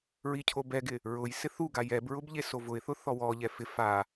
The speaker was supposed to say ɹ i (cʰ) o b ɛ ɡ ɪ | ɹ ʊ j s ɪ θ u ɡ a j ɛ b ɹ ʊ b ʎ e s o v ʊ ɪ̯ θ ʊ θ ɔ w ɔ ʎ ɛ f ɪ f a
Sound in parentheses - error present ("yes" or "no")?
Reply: no